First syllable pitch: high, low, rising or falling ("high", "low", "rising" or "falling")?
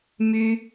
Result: high